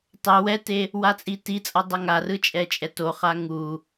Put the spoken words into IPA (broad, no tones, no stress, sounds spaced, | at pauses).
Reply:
tˤ ɛ w ɛ t e | w a t͡sʼ i t i t͡sʼ ʌ dˤ ʌ ŋ a r ɯ t͡ʃʼ ɛ t͡ʃʼ ɛ t o χ a ŋ u